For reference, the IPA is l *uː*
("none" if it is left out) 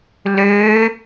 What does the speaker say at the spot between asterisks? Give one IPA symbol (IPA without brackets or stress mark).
øː